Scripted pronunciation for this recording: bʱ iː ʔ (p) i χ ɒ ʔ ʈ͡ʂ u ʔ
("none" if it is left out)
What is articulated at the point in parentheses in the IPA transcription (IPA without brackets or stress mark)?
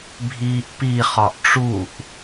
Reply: p